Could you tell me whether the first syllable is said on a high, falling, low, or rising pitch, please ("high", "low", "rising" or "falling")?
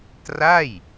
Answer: falling